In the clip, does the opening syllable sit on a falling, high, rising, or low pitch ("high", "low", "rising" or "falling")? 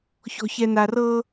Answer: low